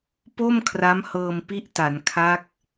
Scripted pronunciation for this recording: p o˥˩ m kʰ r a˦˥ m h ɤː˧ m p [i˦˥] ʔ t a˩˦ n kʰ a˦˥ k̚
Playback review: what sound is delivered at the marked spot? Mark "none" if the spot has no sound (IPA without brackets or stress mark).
i˦˥